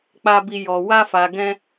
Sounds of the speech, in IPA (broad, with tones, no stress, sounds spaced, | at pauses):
k͡p a˦ b i˦ j ɔ˧ w a˦ f a˧ ɡ ɛ̃˦